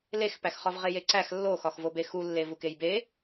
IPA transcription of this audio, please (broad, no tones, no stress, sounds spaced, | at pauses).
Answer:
l e x p æ x χ ɒ v ʁ e j e ǀ æ x lː o x ɒ x v o b e x u lː e v u k e j b e